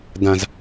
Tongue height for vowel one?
low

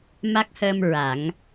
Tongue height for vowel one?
low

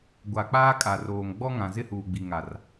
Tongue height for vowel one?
low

